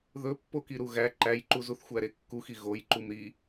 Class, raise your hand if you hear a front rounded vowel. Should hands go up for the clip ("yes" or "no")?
no